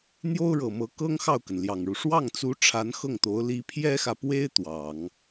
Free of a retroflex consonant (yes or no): no